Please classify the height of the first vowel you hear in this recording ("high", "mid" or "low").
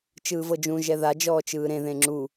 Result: high